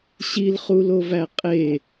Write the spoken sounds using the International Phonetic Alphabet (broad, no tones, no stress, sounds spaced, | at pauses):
ɕ i l χ u l o v æ qʼ e